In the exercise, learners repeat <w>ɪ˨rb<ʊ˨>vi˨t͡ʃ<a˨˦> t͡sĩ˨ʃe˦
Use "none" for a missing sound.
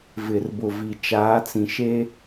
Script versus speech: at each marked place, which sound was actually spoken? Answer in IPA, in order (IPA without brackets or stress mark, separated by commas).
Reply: v, ʊ˨, aː˨˦